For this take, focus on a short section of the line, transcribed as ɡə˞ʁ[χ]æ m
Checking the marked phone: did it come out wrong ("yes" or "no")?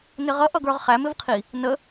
no